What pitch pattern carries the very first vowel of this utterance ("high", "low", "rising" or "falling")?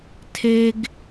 high